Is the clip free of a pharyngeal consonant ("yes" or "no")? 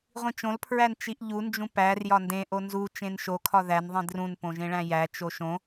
yes